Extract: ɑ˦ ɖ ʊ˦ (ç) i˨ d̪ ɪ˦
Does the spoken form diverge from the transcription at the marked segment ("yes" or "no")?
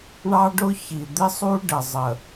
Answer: no